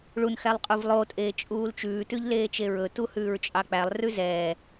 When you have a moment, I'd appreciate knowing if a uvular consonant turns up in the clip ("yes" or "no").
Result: yes